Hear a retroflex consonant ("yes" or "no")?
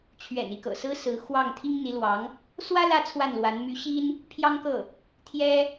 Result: no